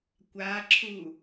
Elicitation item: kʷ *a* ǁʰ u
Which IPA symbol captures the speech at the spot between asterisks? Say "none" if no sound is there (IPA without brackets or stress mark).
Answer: a